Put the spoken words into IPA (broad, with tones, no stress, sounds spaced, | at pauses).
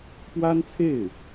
p w a˥ n t͡sʰ e˥˩ ɪ̯